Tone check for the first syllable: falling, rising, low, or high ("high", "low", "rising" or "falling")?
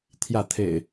falling